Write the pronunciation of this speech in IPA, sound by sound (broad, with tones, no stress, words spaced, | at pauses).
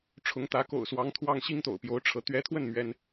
ʈ͡ʂʰʊ˧˥ŋt̪ä˧˥ ko̰˨˩ʊ̯swɑ˧˥ŋt̪ʰwɑ˥˩ŋ ɕi˥ŋt̪o̰˨˩ʊ̯pjo˧˥ʊ̯ ʈ͡ʂʰɤ˧˥ t̪ɥɛ˧˥t̪ʰwə˥˩n mɥɛ˥n